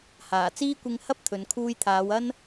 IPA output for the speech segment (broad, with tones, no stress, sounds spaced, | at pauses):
h aː˨˩ t͡s iː˥ kʷ ɪ˧ ŋ h ɐ˥ p̚ t̪ʰ ɵ˨˧ n kʰ uː˧ j t̪ʰ aː˨˧ w ɐ˥ n